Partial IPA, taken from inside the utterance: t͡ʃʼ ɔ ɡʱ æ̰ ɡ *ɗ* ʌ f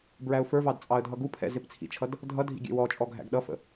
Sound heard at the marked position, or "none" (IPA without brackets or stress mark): ɗ